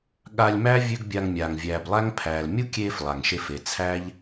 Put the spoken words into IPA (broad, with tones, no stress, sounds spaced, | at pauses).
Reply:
ɠ a˧ lʲ m æ˦ vʲ ø˦ ɡ bʲ a˧ ŋ mʲ aː˨ ŋ vʲ æː˨ b lˠ æ˦ ŋ pʰ æː˨ l mʲ u˦ kʲ eː˧ f lˠ a˨ ŋ ʃ e˧ f e˨ t͡sʰ æː˦ ʎ